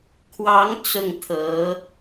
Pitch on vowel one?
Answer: rising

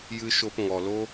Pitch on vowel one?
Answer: high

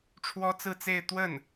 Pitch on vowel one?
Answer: high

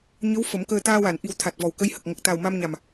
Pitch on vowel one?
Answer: rising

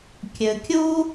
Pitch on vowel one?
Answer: low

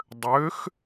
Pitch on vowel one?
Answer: rising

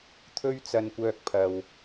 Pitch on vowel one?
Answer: high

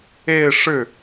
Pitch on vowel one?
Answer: falling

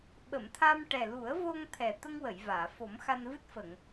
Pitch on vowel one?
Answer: low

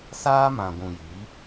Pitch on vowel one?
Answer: high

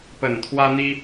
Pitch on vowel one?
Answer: low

